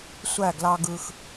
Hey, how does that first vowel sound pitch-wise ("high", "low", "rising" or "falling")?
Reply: falling